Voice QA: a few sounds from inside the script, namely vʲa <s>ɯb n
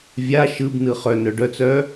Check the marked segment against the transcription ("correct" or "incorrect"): incorrect